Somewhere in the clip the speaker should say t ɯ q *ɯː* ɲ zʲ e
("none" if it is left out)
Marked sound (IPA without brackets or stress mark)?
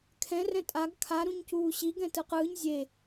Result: ɯː